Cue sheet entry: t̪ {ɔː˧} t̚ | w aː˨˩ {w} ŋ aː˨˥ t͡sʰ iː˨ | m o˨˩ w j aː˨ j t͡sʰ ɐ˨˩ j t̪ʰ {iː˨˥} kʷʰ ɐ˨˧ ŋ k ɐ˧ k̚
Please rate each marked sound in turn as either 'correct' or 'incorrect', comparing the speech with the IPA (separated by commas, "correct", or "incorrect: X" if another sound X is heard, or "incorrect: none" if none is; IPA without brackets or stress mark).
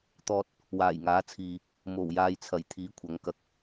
correct, incorrect: j, correct